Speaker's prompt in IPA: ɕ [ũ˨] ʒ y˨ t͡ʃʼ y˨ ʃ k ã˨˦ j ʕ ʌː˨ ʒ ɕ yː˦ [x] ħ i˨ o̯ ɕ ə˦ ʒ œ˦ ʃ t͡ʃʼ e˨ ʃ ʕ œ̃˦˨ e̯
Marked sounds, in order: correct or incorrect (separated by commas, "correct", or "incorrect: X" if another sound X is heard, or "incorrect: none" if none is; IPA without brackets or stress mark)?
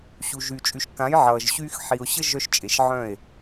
incorrect: u˨, correct